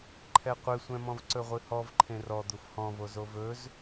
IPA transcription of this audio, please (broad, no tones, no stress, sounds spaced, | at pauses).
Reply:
ǃʰ ɛ qʷ ɨ sʷ ɛ̃ m ɔ̃ v ǀ ɵ ʁʷ ɨ h ɔ v ǃʰ ẽ r ɔ d̪ u f h ɔ̃ v o z o v ɵ z